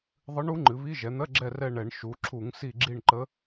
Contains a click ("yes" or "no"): yes